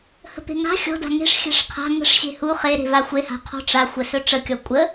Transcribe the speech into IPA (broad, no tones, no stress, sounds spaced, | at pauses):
h ə̤ p e̤ ŋ a̤ xʲ ɔ̤ d a̤ ŋ e̤ ʂ xʲ a̤ ʂ qʰ a̤ ŋ ə̤ ʂ ɕ e̤ h u χ e ɾ e̤ v a xʷ e h a̤ qʰ ɔ̤ ʈ͡ʂ a xʷ ə s ɵ ʈ͡ʂ ə kʲ ɔ kʷʼ ə